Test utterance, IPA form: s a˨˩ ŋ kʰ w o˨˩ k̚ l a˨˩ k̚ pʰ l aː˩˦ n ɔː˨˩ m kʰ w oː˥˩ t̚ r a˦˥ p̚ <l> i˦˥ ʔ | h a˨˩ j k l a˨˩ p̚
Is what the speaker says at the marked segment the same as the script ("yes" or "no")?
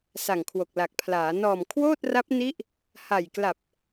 no